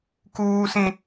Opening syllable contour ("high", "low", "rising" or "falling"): high